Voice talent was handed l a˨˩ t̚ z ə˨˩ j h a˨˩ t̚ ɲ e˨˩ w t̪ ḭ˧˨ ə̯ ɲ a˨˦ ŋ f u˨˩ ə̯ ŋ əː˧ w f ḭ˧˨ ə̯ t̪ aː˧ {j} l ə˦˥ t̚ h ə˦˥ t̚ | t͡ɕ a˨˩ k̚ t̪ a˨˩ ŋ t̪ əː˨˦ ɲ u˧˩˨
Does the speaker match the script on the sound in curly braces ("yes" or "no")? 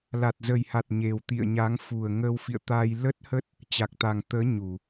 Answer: yes